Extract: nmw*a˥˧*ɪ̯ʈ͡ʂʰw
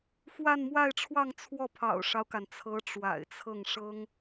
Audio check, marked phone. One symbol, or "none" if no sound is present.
a˥˧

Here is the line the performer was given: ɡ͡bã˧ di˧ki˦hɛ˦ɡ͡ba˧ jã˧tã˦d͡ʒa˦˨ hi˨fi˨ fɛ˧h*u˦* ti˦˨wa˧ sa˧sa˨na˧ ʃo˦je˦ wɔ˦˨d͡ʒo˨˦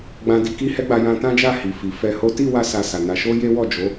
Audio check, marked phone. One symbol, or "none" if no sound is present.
o˦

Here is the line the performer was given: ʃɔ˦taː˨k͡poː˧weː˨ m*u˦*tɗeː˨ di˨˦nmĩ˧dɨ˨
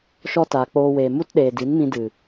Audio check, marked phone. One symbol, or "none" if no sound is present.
u˦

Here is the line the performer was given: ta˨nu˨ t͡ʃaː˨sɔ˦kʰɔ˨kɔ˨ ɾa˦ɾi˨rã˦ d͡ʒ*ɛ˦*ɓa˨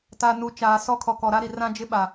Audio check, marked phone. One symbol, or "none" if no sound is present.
ɪ˦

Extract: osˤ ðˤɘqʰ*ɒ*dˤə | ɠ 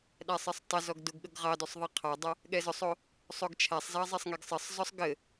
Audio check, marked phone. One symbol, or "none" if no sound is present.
ɑ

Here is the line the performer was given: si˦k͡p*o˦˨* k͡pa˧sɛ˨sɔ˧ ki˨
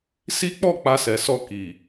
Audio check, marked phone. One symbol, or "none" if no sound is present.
ɔ˦˨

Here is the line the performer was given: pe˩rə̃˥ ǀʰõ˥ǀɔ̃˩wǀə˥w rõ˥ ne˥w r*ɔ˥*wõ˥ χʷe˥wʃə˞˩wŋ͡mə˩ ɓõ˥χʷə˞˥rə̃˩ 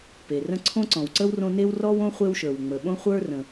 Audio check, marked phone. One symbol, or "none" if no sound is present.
ɔ˥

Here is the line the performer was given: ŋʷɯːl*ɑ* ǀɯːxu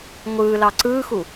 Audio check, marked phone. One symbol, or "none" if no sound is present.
ɑ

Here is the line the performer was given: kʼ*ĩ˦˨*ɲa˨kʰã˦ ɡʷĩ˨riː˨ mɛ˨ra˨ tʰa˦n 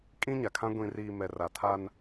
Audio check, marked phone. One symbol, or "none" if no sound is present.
ĩ˦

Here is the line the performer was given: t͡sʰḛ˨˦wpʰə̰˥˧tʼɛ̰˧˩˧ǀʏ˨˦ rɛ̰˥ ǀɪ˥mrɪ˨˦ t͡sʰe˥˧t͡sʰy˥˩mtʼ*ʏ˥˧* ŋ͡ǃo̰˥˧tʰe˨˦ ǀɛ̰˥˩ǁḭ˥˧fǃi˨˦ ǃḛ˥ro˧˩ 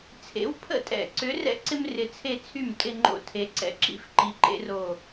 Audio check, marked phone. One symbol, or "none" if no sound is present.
ɪ˥˧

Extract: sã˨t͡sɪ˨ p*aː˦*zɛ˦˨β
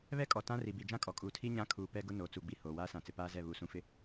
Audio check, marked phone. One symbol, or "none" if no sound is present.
aː˦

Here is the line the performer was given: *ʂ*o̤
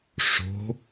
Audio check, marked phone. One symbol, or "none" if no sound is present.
ʂ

